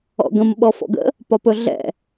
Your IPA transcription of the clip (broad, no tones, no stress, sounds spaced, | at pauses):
ɔ̰ ɡ ə̃ m ɓ ɔ f ɔ̰ ɡ ə̰ | p ɒ p ɵ ɮ ɛ̰